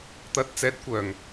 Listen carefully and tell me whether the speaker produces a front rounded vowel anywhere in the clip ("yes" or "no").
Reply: yes